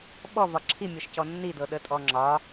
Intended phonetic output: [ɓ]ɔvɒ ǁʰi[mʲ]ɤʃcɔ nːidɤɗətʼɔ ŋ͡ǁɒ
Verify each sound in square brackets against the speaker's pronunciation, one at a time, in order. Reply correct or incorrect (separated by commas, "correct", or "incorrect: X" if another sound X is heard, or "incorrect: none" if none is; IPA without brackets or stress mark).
correct, correct